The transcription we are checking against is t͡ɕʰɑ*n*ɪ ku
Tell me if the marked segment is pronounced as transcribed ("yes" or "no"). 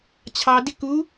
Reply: no